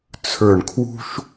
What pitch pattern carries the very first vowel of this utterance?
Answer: low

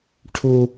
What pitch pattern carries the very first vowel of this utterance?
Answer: high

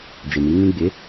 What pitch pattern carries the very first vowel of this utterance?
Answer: low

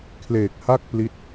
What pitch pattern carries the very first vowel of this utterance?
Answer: low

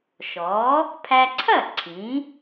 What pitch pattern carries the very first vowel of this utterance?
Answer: rising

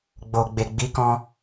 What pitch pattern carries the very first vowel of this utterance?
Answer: low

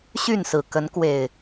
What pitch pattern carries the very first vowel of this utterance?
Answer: falling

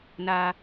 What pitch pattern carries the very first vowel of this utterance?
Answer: high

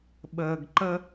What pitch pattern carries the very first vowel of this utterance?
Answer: low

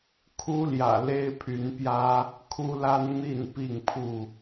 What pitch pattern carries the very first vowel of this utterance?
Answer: high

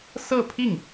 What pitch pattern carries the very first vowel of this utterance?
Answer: falling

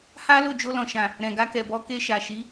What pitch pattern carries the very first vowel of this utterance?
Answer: high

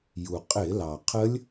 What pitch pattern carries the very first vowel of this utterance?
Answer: low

